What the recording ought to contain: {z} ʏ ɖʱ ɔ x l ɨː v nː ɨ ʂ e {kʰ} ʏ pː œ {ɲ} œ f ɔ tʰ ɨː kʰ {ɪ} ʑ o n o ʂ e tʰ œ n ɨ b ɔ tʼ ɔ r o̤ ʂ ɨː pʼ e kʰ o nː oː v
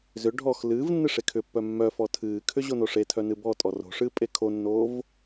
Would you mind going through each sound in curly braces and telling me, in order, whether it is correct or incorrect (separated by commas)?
correct, correct, incorrect, incorrect